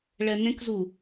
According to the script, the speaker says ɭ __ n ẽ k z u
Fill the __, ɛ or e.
ɛ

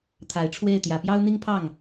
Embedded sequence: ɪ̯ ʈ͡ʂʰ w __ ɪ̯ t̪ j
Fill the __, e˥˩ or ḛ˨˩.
e˥˩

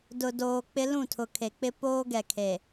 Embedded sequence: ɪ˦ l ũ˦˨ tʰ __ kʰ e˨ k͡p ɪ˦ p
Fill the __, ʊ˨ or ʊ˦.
ʊ˨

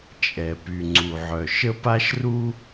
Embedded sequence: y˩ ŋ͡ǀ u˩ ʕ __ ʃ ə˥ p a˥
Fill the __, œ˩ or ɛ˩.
œ˩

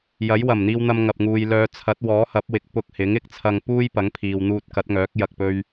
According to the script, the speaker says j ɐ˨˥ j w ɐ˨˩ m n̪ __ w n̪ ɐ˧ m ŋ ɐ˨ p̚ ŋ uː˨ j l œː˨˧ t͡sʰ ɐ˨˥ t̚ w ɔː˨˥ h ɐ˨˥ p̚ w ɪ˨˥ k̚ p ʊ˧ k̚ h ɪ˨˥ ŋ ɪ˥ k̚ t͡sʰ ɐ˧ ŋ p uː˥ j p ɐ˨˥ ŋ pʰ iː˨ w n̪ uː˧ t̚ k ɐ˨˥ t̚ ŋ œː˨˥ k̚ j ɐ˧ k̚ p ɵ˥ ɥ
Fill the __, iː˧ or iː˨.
iː˧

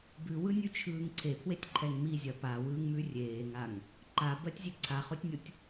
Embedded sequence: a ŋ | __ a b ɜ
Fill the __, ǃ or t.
ǃ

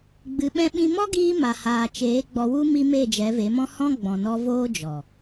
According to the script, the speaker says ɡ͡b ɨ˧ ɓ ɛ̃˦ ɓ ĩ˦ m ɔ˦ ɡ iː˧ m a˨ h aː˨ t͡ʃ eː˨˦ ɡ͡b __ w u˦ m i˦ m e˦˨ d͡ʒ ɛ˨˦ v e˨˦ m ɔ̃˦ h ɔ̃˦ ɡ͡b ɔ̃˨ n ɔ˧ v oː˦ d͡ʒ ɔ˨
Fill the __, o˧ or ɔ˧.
ɔ˧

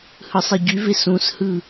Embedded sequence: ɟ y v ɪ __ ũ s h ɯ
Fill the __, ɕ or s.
s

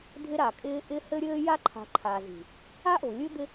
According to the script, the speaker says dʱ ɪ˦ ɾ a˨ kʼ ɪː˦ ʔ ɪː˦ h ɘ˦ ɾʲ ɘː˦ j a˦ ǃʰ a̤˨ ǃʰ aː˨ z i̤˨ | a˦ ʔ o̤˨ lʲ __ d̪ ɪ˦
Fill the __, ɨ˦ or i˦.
ɨ˦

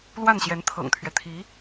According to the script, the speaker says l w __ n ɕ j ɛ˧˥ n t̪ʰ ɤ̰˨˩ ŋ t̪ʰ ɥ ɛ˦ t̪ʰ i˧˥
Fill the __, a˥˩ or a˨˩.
a˥˩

